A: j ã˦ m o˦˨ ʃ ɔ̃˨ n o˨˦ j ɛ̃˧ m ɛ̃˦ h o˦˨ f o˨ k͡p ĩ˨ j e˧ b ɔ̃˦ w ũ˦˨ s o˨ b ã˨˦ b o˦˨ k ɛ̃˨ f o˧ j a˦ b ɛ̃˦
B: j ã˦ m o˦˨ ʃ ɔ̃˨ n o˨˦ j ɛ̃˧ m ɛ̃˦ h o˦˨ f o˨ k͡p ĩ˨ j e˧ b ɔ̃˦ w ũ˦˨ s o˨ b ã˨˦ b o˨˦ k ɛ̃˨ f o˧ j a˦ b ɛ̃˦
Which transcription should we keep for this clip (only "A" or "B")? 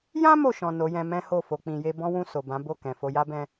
A